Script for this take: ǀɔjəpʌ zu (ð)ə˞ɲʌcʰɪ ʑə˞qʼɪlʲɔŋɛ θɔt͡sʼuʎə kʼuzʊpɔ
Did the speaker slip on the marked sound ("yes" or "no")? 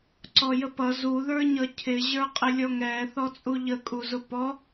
no